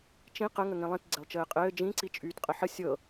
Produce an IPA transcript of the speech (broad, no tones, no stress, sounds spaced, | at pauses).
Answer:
t͡ʃ ĩ q ə ŋ ə ŋ ĩ lˠ ĩ t ɡ͡ǀ e lˠ t͡ʃ ɘː qʼ ɘː d͡ʒ ĩ ǀ i t͡ʃʼ yː t qʼ ə ħ ə sʲ ɤ